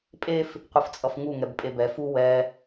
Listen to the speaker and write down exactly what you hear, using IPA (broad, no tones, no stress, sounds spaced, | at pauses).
pʼ e f | qʷ ɯ f t͡sʼ ʌ f ŋ u ŋ ɛ b pʼ e b ɛ f u w ɛ